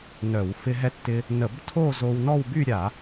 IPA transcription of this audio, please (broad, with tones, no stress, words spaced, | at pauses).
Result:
nœ˧˩˧w fɪ˧ɦɛ˧ tːɪ˧ | nə˧˩˧btʰo˥˧ zo˧w nɔ˥˧wby˥˧ ɾʲa˧˩˧